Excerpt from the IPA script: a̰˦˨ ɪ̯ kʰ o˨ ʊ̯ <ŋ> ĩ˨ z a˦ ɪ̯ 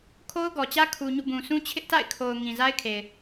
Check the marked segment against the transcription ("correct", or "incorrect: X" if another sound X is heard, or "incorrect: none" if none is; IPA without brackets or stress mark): correct